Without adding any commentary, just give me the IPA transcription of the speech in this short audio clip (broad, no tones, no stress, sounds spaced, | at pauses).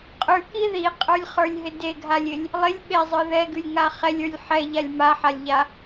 qʼ ʉ k i ð i qʼ ə˞ lʲ χ ə˞ lʲ ɦ ɪ d e ɡʱ a lʲ ɪ lʲ | lˠ ɪ lʲ ɓ e zˤ ə˞ ð ɛ ɡ ʉ lʲ ŋ a χ ɛ lʲ ə˞ lʲ ħ ɛ ʎ a lʲ m a ħ a lʲ ʎ a